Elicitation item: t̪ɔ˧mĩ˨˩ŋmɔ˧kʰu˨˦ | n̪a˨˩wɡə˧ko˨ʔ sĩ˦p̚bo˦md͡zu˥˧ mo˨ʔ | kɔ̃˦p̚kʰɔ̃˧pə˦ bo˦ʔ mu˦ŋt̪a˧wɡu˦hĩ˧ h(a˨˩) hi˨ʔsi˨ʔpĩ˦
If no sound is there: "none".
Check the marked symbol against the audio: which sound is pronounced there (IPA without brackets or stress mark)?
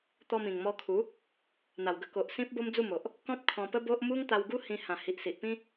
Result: ã˨˩